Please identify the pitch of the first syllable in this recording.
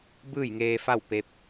falling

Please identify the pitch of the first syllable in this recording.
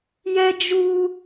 high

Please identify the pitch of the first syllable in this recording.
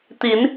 rising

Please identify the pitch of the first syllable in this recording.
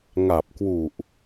low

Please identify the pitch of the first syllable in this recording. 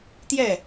falling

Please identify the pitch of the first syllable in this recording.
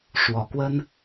low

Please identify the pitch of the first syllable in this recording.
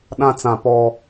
high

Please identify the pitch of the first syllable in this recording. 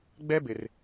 high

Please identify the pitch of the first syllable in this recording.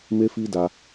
high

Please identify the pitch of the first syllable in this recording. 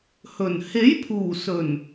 low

